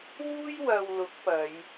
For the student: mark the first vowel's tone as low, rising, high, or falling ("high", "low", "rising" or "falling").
high